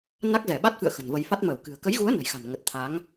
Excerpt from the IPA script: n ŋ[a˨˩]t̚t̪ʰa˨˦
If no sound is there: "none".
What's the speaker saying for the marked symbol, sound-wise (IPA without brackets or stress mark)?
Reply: ə˨˩